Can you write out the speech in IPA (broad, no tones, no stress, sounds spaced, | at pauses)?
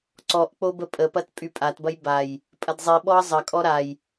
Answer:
ǀ ɔ ʔ k͡p o b ə pʼ ə p ɐ t pʼ y pʼ a t b ɐ j b a j | pʼ ɐ d zˤ i ɓ ɔ ɐ̯ zˤ ɐ kʼ ɔ ɾ a j